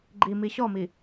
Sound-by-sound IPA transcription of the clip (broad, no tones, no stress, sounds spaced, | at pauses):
ɡ͡ǃ i m i ɕ ɔ m i